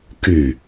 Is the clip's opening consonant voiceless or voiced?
voiceless